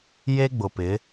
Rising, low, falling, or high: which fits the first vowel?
high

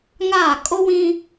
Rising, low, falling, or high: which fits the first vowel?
falling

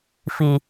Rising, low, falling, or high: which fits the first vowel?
low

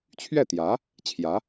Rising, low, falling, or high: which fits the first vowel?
falling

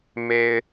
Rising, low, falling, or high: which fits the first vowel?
low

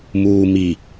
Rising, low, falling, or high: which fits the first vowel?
low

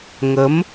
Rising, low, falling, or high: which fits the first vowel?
rising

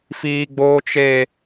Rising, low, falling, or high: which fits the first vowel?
high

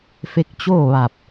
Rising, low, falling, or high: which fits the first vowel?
rising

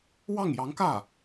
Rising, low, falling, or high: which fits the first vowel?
falling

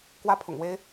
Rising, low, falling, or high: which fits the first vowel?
high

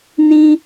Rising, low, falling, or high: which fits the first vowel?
high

